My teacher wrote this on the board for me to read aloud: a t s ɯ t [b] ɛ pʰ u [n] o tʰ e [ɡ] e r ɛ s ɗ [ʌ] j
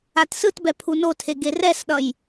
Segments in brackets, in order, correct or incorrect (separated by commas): correct, correct, correct, correct